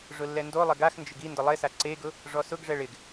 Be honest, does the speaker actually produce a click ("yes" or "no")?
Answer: yes